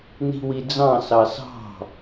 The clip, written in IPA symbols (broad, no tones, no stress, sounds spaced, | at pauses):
n i̤ w i d͡z ɑ̃ s ɑ s ɑ̤